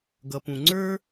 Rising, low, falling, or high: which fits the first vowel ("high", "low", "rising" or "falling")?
low